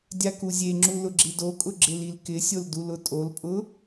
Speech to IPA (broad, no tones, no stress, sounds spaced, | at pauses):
dʲ a k u zʲ e ŋ͡ǁ u l ʊ ɡ͡ǁ i d o kʼ ʊ ɡ͡ǁ ɪ l i l k ɪ sʲ o l d u l ʊ tʼ o l pʼ ʊ